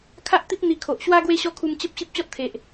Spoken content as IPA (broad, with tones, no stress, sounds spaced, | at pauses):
kʰ a˦ ʔ t̪ i˦ p̚ n̪ i˧ kʰ o˨ ʔ ɕ w a˦ ɡ w e˦ ɕ ɔ˦ kʰ u˧ m t͡ɕ ə˦ p̚ ɕ i˦ p̚ t͡ɕ ɔ˦ t̚ t̪ʰ e˨ ʔ